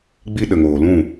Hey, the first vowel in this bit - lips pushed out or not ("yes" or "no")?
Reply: no